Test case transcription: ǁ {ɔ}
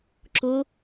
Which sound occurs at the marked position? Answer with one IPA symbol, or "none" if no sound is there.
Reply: ʊ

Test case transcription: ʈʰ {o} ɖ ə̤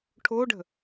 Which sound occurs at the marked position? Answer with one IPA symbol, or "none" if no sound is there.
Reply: o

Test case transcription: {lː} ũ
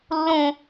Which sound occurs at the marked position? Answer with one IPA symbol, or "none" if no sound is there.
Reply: lː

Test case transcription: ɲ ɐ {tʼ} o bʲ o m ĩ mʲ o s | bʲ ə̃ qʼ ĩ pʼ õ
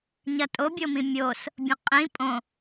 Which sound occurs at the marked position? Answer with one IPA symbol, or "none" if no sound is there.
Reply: tʼ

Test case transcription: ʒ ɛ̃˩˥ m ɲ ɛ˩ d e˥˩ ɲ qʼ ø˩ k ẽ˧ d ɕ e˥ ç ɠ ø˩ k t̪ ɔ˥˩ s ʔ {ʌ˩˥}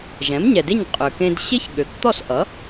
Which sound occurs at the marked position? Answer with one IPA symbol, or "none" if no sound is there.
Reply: ʌ˩˥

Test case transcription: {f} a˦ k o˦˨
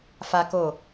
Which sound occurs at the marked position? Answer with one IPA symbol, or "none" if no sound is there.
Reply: f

